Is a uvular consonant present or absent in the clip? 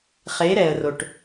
present